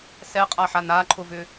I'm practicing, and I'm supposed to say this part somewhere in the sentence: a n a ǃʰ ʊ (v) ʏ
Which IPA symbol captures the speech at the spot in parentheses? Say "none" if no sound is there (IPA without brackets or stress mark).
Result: v